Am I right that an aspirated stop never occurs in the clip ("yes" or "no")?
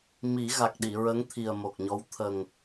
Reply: no